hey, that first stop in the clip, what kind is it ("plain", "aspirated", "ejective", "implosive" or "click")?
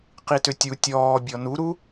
plain